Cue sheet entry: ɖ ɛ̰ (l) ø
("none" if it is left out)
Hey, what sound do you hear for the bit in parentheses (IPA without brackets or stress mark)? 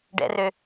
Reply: r